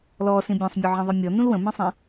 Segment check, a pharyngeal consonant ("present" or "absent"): present